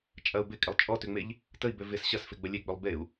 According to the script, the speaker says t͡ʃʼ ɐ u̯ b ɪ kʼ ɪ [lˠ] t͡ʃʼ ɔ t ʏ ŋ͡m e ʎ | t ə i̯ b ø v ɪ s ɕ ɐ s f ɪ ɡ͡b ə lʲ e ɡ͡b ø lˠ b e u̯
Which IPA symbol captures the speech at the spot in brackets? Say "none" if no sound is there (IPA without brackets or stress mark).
lˠ